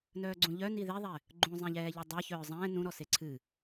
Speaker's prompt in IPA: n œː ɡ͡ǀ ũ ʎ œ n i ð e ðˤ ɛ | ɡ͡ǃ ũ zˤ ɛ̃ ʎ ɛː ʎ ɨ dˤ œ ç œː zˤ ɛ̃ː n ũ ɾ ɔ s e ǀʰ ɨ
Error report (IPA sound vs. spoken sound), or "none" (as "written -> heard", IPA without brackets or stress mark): none